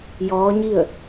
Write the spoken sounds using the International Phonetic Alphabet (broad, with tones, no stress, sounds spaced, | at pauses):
j ɔː˧˥ ɲ i˥˨ ə̯